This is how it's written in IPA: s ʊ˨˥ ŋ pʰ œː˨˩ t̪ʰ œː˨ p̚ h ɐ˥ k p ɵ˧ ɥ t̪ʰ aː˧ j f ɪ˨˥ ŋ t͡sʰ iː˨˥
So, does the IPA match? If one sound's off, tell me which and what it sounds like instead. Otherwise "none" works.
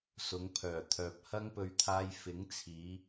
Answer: k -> ŋ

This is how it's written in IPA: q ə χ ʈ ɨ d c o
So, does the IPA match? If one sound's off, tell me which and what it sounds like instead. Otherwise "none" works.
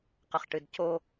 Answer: none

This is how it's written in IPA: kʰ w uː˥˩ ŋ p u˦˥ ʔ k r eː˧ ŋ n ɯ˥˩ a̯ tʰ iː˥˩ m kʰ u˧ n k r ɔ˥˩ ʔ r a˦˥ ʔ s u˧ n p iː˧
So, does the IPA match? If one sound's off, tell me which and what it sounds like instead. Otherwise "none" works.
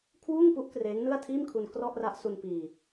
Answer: eː˧ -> eː˦˥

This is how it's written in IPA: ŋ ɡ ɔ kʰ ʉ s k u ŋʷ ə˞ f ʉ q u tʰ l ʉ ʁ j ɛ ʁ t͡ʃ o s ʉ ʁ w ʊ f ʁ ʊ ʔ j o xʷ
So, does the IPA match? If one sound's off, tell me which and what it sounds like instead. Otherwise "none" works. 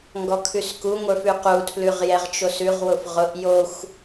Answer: none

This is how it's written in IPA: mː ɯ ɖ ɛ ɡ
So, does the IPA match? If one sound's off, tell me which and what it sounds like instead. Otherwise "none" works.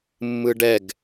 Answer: none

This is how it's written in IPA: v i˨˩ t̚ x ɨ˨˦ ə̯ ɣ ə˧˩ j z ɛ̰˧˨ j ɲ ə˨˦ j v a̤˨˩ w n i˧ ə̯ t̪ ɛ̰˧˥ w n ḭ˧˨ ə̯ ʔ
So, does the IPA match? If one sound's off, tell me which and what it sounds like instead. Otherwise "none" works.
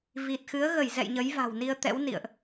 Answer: none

